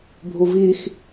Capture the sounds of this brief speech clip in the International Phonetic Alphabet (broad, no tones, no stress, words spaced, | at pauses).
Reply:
bʱuvix